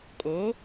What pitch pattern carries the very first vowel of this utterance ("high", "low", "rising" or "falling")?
rising